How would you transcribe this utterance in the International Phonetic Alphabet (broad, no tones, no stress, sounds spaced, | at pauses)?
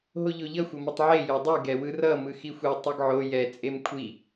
ɦ o ʎ o ʎ ʌ xʷ ʌ m ɯ tˤ ʕ e j o dˤ ɯ ɡ ɛ w ɯ r ʌ m ɯ x i xʷ ɛ tˤ ʌ ɡ ʕ o j ɛ t͡sʼ e m kʷʰ i